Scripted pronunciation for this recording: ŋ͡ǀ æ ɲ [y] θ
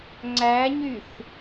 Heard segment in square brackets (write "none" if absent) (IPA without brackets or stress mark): y